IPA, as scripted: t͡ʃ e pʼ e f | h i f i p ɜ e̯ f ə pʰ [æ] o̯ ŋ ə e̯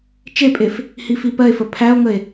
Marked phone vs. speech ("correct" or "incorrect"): correct